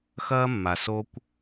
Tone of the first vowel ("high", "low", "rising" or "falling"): high